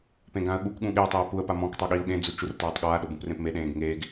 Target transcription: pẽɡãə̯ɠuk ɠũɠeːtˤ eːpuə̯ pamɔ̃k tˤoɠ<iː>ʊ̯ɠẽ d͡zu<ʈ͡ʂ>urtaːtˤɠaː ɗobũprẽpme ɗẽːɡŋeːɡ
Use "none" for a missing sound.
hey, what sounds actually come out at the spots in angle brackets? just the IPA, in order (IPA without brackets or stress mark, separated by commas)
iː, t͡ʃ